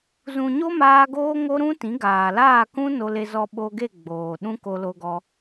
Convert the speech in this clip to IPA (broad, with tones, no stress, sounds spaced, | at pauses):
z ũ˨ ɲ o˦ m aː˧ ɡ oː˦ ŋ o˦ ɾ ũ˦ t ĩ˨˦ ɡ aː˨ l aː˦˨ k ũ˦ n o˧ l e˧ z ɔ˧ ɓ o˧ ɡ e˦˨ ɡ͡b oː˨ ɗ ũ˦ k o˧ l o˧ ɡ ɔ˧